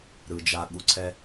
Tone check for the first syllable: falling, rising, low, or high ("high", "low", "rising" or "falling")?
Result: low